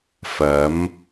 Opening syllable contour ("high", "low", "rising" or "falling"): rising